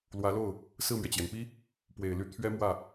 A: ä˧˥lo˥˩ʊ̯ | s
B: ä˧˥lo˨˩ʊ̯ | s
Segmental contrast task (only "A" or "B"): A